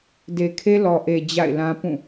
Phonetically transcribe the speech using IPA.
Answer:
d e˨ kʰ e˦ l ɔ˨ ʔ e˨ d͡ʑ a̰˦˨ ɪ̯ l ã˦ p ũ˦˨

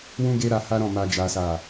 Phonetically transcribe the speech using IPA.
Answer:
w ũ˦ ɡ e˦ ɾ a˧ h a˦ ɾ ɔ̃˦˨ m a˧ d͡ʒ a˦ s a˦˨

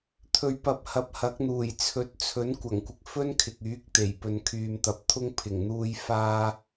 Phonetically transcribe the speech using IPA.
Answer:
t̪ʰ ɵ˨˧ ɥ p ɐ˨˥ p̚ h ɐ˨˥ p̚ h ɐ˨˥ k̚ n̪ uː˨˩ j t͡sʰ ɵ˨˥ t̚ t͡sʰ ɵ˨˥ n kʷ ɐ˨˩ ŋ kʷ ɪ˨ k̚ f ɵ˥ n kʰ ɪ˨ k̚ yː˨˥ k̚ t̪ e˨˩ j p ɵ˨ n kʰ yː˨ m t̪ ɐ˨˥ p̚ t̪ʰ ʊ˥ ŋ pʰ ɪ˨˩ ŋ n̪ uː˧ j f aː˥

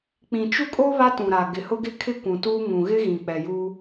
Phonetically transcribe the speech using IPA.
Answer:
k͡p ĩ˨ t͡ʃ u˦ kʼ o˦ β a˦ t ũ˨ ɾ a˨ ɡ ɪ˨ h ʊ˦ ɡ ɪ˦ kʰ ɪ˦ kʷ ũ˨ t uː˦ ŋ ũ˨ ɣ ɪ˦ ɣ ĩ˨ k͡p ɛ˨ j u˦

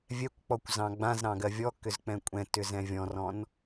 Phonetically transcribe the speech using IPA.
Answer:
vʲ ɛ kʷ k͡p ɔ kʷ z ɑ̃ ɡ͡b ã z ɾ ɑ̃ ɡ ɜ vʲ ɔ k ʏ z k͡p ɛ̃ kʷʼ ɛ̃ t ʏ z ɛ̃ vʲ ɔ̃ r ɔ̃ n

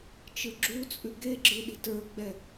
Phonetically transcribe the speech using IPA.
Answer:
t͡ʃ ɯ ɡ͡ǁ u t͡sʼ ʉ ɡ e ɡ͡ǁ ɯ ɗ i̤ t ə˞ ɡ͡b ɛ

